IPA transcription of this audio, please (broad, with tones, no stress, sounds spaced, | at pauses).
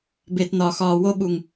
b e˨ t n ɒ˨ x ɒː˨ w o˧ ɓ u˨ ŋ